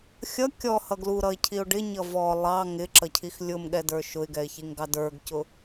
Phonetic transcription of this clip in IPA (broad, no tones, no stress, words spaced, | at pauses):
xʲʌ kʲɔhʌ ɡluɾʌɪ̯cʰiʊ̯ ɖɪɲʌ vɔ lˠɑ ŋɪǁʌcʰix lʲʊmɠɛdə˞ ʃʊɪ̯ɡɛɪ̯çiŋɡɑ də˞ɡcʊ